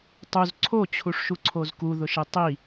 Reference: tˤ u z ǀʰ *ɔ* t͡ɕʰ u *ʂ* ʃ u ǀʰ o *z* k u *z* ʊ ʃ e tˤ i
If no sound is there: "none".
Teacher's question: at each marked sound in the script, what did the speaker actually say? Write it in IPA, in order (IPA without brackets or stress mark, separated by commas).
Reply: o, ʂ, z, ð